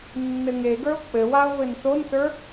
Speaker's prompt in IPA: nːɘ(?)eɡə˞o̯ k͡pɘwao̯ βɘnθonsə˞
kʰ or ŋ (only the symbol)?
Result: ŋ